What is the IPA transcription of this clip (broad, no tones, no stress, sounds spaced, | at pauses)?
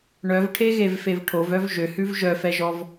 ɳ œ v ʈʰ e ɣ e v f e v ʈʰ o v œ v ʒ ø h ʉ v ʒ œ f ɛ ʒ ɔ v